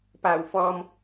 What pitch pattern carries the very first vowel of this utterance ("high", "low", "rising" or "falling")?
low